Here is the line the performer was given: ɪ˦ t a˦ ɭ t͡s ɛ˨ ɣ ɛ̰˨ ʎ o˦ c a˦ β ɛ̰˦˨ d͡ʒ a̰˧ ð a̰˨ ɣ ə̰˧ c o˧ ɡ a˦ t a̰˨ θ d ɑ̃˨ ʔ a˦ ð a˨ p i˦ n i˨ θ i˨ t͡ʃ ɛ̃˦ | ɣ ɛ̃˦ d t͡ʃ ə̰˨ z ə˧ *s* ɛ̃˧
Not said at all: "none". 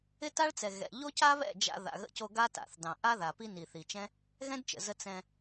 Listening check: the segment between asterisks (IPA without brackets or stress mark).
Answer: t͡s